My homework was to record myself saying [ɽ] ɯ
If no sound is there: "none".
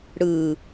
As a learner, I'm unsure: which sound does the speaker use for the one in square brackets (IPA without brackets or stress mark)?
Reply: ɽ